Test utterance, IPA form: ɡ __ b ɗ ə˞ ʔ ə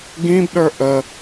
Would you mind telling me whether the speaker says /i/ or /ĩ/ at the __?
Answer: ĩ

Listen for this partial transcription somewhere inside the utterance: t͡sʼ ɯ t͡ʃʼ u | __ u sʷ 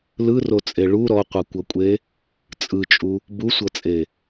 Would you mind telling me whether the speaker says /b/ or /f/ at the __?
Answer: b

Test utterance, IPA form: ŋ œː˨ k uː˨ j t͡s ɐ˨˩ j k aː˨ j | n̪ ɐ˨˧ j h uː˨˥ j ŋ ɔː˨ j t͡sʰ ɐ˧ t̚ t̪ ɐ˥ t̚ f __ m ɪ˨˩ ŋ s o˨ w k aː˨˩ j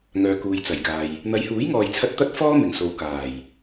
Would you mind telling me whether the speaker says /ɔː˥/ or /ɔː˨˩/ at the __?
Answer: ɔː˥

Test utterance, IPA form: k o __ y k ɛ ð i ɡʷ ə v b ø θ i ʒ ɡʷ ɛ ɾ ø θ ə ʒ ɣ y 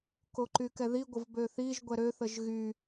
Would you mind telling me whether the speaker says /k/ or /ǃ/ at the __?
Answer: ǃ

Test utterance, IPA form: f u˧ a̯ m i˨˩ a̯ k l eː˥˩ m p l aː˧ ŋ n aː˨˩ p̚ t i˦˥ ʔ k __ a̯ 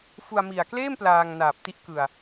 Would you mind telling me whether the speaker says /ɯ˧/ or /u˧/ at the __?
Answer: ɯ˧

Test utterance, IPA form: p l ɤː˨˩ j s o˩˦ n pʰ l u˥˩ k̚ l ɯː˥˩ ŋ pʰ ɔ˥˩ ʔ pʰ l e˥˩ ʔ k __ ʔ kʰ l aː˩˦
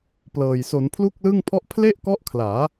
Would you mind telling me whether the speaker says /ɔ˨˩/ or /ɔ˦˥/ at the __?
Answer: ɔ˦˥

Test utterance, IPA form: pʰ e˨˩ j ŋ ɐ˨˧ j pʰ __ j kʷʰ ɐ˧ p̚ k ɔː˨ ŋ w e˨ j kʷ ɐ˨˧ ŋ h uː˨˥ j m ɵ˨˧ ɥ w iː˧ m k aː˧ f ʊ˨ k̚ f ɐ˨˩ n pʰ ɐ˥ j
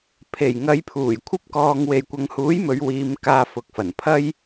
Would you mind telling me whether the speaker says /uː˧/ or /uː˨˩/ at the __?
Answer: uː˨˩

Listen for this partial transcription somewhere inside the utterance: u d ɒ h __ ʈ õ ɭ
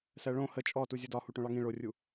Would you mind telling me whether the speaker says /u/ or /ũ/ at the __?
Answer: u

